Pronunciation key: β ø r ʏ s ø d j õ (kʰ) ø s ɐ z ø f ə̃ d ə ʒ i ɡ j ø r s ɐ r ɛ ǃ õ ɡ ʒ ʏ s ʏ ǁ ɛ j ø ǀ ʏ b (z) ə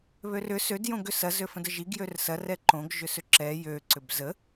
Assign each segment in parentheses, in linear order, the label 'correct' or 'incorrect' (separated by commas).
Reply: incorrect, correct